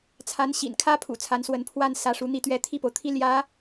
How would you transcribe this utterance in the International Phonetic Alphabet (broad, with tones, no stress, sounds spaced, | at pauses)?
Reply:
t͡sʰ a˧˥ n ɕ ḭ˨˩ n kʰ ä˥ pʰ ṵ˨˩ t͡sʰ a˧˥ n s w ə˧˥ n pʰ w a˥˩ n s ä˧˥ ʂ u˧˥ n̪ i˥˩ t̪ ɥ ɛ˥ t̪ʰ i˥˩ p o˩ ʊ̯ t̪ʰ i˥ l j ä˧˥